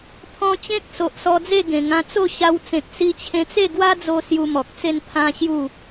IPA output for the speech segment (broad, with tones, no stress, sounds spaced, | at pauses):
pʰ ɔ̃˧ t͡ɕ ẽ˦ k̚ s o˨ ʔ s ɔ˧ d͡z e˥˧ ɡ ẽ˨˩ ŋ ã˧ t͡s o˥˧ ɕ a˧ w t͡s ẽ˨ k̚ s i˧ t͡ɕʰ ẽ˧ t͡s e˥˧ ɡ w a˦ d͡z o˧ s j u˧ m ɔ˨ k̚ t͡s e˥˧ n pʰ ã˦ ɕ j u˥˧